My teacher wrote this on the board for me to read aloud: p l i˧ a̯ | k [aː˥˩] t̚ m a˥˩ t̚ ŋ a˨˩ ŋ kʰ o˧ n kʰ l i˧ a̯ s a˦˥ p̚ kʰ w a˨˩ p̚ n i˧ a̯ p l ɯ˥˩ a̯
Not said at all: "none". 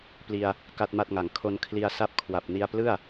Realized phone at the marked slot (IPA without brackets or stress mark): a˥˩